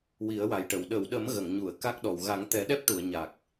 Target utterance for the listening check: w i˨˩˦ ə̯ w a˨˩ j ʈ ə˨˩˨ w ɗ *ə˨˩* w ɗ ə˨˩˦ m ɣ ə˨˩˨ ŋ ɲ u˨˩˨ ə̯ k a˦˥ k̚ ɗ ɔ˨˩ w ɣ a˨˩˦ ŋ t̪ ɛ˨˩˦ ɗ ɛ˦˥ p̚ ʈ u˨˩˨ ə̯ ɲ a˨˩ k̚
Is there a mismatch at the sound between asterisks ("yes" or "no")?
yes